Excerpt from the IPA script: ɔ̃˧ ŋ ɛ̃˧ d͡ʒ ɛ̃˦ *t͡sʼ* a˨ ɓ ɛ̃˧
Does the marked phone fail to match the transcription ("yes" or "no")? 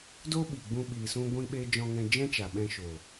yes